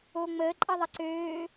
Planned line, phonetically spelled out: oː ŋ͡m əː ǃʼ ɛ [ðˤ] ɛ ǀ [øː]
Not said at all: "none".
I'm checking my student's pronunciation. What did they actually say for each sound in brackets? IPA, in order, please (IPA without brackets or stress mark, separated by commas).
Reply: ðˤ, øː